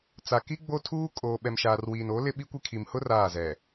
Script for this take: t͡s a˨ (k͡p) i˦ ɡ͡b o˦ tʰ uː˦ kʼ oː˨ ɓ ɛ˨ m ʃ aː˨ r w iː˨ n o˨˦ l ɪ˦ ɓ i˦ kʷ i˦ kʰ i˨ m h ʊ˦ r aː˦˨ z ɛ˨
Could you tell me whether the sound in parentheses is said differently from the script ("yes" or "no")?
yes